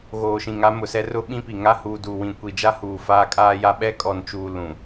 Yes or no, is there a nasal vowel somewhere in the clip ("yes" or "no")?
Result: yes